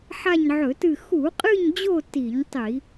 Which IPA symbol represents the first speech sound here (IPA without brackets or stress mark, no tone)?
ħ